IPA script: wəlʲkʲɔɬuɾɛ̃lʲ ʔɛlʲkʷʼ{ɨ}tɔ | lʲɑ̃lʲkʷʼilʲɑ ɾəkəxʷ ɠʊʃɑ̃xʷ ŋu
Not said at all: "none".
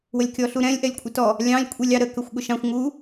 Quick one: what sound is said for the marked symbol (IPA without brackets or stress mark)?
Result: ɪ